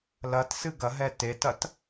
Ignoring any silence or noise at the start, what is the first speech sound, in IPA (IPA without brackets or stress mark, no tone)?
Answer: l